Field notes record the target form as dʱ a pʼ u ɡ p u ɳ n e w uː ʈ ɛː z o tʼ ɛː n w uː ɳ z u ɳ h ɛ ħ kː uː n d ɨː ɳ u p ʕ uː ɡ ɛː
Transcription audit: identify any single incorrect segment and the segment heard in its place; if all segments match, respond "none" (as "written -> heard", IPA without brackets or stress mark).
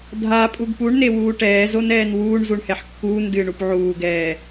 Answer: tʼ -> n